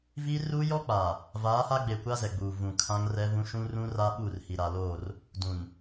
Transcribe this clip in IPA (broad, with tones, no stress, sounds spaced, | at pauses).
v i˦ r uː˦ j ɔ˦ k͡p aː˨ | v aː˨˦ h a˦ ɡ͡b e˨ kʷ a˦ z ɛ˨ ɡ͡b uː˨ v ũ˨ kʰ ã˦ ŋ r ɛ˦ v ũ˦ ʃ ũ˦ r ũ˦ r a˦ ɓ u˦˨ r h i˨ ɾ a˨ l oː˦˨ r | d ũ˨ n